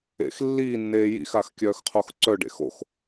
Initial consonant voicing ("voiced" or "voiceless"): voiceless